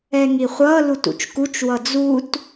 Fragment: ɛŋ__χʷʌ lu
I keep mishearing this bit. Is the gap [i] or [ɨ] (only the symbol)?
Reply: i